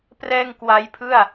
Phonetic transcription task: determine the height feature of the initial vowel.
mid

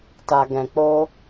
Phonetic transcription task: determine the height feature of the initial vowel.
low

